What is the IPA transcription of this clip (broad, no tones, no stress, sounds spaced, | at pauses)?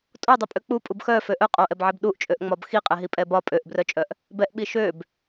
tʼ o dˤ o pʼ ø k͡p u pʼ u b x œ f ø ʔ œ qʼ o ʔ ɛ b ʕ ɛ b ɗ u ʔ t͡ʃʼ ø ʔ ŋ͡m ɒ b x i qʼ ɛ ɦ i pʼ ɛ b ɒ pʼ ø ʔ b r œ t͡ʃʼ œ ʔ | b ɛ ʔ ɓ i ʃ ø b